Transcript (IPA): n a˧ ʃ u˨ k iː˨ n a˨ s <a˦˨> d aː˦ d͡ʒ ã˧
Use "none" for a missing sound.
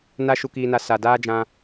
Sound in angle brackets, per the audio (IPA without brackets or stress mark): a˨